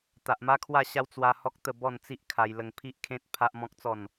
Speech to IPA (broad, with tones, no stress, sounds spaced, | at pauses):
t̪ a˨ ʔ m a˦ kʰ w a˥˧ ɕ a˦ w t͡s w a˦ h ɔ˦ k̚ t̪ ə˥˧ b ɔ˥˧ n t͡s i˦ ʔ kʰ a˧ j l ə˧ ŋ pʰ i˦ ʔ kʰ ẽ˦ t̚ pʰ a˦ ʔ m ɔ̃˦ k̚ t͡s ɔ˥˧ n